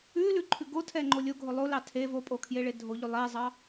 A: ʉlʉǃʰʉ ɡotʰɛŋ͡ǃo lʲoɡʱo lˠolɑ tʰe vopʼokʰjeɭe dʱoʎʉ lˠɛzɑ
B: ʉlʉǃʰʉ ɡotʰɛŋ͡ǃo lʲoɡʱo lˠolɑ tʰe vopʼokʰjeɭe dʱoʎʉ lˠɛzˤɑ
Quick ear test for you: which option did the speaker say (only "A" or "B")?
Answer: B